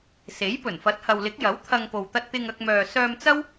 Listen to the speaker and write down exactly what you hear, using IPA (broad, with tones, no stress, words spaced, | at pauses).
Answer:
se˨˥jpɵ˨˩nfɐ˨˥t̚ hɐ˨wlɪ˨˥k̚ jɐ˨˥w t̪ʰɐ˧ŋpo˨wt̪ɐ˧t̚t̪ɪ˧ŋ ɐ˧k̚mœː˨ sœː˧m t͡sɐ˥w